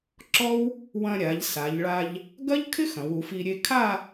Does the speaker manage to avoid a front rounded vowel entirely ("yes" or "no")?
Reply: yes